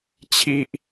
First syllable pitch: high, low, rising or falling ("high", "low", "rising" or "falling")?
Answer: high